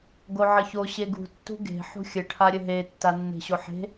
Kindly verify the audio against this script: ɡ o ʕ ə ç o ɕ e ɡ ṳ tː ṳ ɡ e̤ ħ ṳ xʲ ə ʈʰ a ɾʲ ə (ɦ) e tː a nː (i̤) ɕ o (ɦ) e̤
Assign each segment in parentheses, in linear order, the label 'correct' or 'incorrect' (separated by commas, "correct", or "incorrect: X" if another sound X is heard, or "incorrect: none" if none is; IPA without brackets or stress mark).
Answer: correct, incorrect: e̤, incorrect: ħ